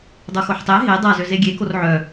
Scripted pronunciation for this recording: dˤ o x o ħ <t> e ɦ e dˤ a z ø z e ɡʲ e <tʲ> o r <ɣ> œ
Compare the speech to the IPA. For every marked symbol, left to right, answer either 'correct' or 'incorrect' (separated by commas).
incorrect, incorrect, incorrect